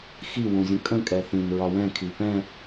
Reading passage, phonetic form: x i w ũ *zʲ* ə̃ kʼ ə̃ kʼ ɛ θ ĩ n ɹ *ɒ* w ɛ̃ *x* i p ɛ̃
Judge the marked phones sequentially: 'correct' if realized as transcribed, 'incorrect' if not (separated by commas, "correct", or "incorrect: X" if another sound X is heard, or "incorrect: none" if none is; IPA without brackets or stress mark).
correct, correct, incorrect: kʰ